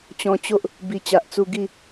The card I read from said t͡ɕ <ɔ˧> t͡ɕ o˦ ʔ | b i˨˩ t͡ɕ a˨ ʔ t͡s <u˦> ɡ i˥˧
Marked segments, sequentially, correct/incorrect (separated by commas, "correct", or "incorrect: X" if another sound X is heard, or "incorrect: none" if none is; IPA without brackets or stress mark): incorrect: ɔ̃˧, incorrect: u˧